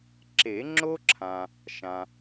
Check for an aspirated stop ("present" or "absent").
present